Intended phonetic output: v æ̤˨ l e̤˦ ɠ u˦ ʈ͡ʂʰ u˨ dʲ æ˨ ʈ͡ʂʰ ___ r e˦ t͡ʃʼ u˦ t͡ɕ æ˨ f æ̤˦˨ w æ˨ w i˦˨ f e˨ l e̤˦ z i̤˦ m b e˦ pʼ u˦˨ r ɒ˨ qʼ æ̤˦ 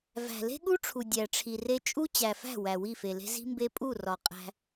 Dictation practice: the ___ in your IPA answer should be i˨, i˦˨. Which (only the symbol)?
i˨